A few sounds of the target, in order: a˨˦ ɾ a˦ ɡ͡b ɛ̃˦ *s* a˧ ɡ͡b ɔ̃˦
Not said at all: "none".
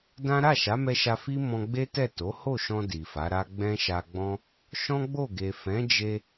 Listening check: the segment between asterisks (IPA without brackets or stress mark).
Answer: ʃ